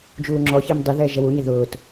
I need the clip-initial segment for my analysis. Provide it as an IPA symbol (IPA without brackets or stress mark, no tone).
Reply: d͡ʒ